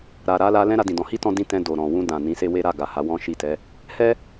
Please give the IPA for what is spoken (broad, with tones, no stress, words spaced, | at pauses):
ɾa˨ ɾa˧la˧ lɛ̃˦ɾa˧dĩ˨dɔ̃˨˦ hi˦tɔ̃˧ dĩ˦tɛ̃˧ do˨ ɾɔ̃˨wũ˧dã˨ nĩ˨˦se˦we˦ ɾa˦˨ɡa˨ ha˨˦wɔ̃˦ʃi˦˨tɛ˨˦ | hɛ˦